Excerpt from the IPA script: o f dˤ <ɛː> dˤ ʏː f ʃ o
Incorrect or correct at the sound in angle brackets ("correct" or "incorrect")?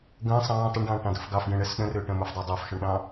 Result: incorrect